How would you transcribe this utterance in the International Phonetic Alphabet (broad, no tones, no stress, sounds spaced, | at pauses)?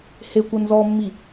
h e kʷ ə n z ɔ mː i